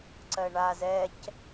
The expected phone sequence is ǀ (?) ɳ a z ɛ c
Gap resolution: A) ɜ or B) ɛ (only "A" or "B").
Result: A